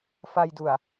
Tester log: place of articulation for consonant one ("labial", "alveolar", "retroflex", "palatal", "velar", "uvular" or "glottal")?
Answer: labial